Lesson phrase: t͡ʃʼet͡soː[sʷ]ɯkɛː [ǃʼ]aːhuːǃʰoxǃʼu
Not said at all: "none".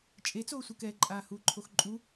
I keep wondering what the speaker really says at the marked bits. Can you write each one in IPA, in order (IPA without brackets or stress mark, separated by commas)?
sʷ, ǃʼ